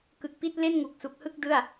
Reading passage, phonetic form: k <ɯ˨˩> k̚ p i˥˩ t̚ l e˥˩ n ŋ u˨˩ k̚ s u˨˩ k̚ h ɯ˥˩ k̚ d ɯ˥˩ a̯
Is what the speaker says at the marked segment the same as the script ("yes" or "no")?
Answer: yes